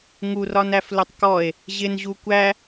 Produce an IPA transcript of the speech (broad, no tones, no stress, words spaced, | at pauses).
ŋurɒnæflʊtˤ kɔe̯ | ʑɪnʑu kʷæ